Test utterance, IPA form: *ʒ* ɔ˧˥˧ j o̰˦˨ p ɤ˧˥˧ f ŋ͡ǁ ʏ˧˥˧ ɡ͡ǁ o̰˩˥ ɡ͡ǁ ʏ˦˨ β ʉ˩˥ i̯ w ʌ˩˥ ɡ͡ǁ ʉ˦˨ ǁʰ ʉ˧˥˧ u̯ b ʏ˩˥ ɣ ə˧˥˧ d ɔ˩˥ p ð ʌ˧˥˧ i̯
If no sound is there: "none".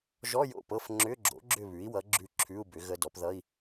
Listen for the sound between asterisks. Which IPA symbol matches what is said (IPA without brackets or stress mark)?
ʒ